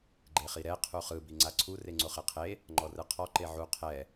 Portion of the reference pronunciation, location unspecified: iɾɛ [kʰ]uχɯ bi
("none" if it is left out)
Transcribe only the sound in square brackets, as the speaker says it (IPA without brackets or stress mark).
qʰ